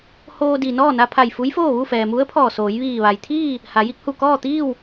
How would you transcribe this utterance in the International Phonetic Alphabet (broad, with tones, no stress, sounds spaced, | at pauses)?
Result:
h oː˧ d i˩ n ɔː˥˨ n a˧ pʰ a˧˩ j f u˧˥ j f oː˥˨ ʋ u˥˨ f ɛː˩ m u˧˥ ə̯ pʰ ɔː˧˩ s oː˩˧ j ʋ iː˧˩ ʋ a˩ j t̪ʰ iː˥˨ | h a˩˧ j i˧˥ k̚ h u˧˩ k ɔː˥˨ t̪ iː˥˨ w